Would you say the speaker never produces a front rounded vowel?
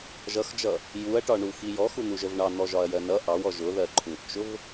yes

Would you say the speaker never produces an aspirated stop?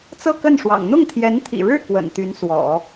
no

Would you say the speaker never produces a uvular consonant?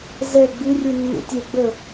yes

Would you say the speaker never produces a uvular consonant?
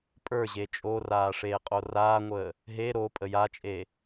no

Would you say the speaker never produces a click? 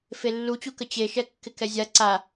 no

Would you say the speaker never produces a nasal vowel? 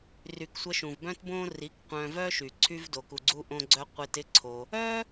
no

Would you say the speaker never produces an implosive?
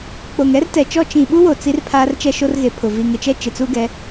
no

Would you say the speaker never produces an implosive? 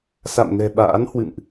no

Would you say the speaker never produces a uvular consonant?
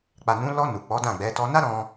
yes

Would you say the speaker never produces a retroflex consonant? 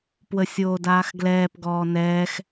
yes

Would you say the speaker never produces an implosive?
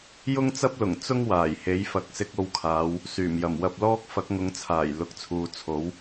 yes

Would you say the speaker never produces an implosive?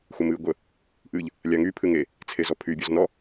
yes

